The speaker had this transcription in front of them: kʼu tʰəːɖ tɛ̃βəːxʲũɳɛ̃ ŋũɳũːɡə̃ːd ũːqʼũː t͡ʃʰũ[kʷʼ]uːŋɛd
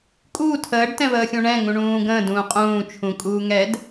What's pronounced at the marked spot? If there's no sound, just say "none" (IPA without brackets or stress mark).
kʼ